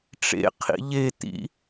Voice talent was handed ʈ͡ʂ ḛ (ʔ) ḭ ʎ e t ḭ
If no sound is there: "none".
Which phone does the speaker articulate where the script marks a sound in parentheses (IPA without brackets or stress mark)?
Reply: qʰ